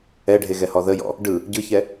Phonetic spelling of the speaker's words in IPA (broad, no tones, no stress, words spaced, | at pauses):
ɛɖʱeɣɛhɔ ðəjɔ̰ | ɖɯ | ɟɯçɛ